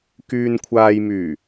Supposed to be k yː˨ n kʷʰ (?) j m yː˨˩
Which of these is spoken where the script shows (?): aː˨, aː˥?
aː˨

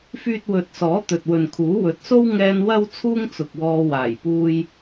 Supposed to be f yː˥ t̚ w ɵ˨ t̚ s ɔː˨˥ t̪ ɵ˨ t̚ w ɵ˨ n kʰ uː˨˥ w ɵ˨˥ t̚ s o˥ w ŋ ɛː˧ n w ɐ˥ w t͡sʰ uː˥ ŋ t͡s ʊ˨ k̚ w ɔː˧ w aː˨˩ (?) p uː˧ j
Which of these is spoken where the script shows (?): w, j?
j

